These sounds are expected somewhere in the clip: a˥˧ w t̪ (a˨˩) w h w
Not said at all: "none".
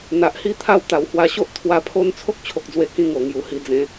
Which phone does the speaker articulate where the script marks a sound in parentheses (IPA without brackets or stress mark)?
a˨˩